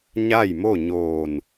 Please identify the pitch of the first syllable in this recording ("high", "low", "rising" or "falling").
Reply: falling